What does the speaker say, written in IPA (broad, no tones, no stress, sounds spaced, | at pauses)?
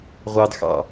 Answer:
ʁʷ ɑ d x ɑ̰